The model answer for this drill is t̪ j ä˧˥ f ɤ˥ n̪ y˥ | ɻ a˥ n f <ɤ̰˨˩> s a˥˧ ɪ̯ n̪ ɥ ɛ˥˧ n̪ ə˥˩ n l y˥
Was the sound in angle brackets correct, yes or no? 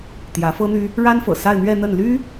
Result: yes